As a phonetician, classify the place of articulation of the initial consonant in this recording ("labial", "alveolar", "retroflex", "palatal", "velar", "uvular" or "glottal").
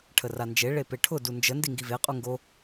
retroflex